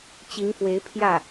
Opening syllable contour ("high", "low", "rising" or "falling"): rising